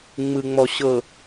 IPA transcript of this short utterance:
ŋ͡mɯ˨ŋ͡mɔ˨ɕɤ˨

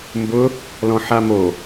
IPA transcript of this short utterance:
mbʊ | lɔ̃ħamo

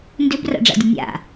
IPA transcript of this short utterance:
ndøbra̰ɖ͡ʐa̰dʲə nʲa̰

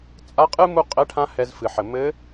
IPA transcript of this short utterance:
t͡sʼa˧˥qʼɨ˥ mu˥ qʼɘ˧˥ʈʰã˧˥ hɛ˧zfɨ˩ħɘ˩ mɘ˧˥

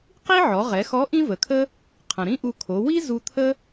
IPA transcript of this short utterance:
qi˥ʕɔ˩˧ʁɛ˩˧xɔ˧˥ ʔĩ˥və˩˧kʰə˥ | qʰə̃˩ɾĩ˥ʔu˧kʰo˩˧ wi˥ zu˧t̪ʰə˥

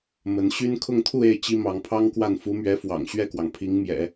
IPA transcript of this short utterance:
mə˧˥nɕy˥n kʰʊ˥˧ŋt̪ʰu˥˧e˥˩ɪ̯ t͡ɕi˥mɑ˧˥ŋpʰɑ˥ŋkwa˥˩n fu˧˥mɥɛ˧˥fwɑ̰˨˩ŋ ɕɥɛ˥˩kwɑ˩ŋpʰi˧˥ŋmjɛ̰˨˩˦

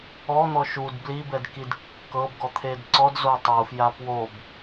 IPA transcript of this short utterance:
ɔn̪ɔ ʃud blibɛdkid kːɤbɡɔt̪ʰed ǀɔdzo tˤufja pwob

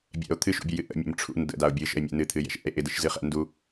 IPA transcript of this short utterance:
bʲɛ̰o̯ t̪ʰɨʃṵbʲujɨ ʔə̰mʲə̰m ʈ͡ʂʰṵn də̰dao̯ bʲɨʃə̰e̯mʲɛ̰ nɨt̪ʰɨjɛ̰ʃʔɛ̰e̯ ʔɪdɨʃzɨχɛ̰ ndu

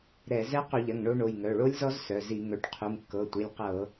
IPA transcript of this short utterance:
ɾɛ˧˩˧ zɛ˦˥ qu˧˩˧ʎɐ˩˧˩ŋ ɳo˦˥ ɳo˩˧˩jŋœ˩˧˩ɭo˦˥lʲzɔ˦˥z sœ˩˧˩zi˧˩˧ ŋœ˩˧˩ʈ qʰu˩˧˩mkːɤ˩˧˩tʷi˩˧˩lʲ qɤ˧˩˧

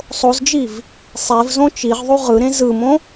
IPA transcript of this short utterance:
sˤozd͡ʒiv | sˤevzõ t͡ʃiʁðˤu ʁɯɾẽ zɯmõ

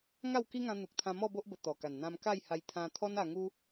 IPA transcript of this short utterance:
ŋa˥˧wki˦ŋã˧ n̪u˨k̚t̪ʰã˧ mɔ˥˧bo˦ʔ bə˧t̪ɔ˨˩ka˨˩n n̪ã˧mka˥˧jha˧j t̪ʰã˧t̪ʰɔ˦na˧ŋu˦

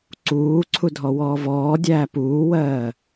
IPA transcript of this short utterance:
ǀuːǀʰudʱɔ wɔːvɔː dʲæːpuːwɜː

